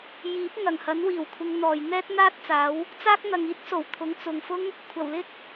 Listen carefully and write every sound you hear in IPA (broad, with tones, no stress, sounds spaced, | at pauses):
j iː˨˥ p̚ ŋ ɐ˨˩ ŋ h ɐ˨˥ n w iː˨˩ w kʷʰ ɪ˨˧ ŋ n̪ ɔː˨ j n̪ ɛː˥ t̚ n̪ aː˥ t̚ t͡s aː˨˥ w | t͡s aː˥ k̚ n̪ ɐ˨ ŋ iː˥ t̚ s o˨˩ w t̪ʰ ʊ˨˥ ŋ t͡s ʊ˨ ŋ f ʊ˥ ŋ | kʷʰ ɐ˨˩ w l ɪ˥ k̚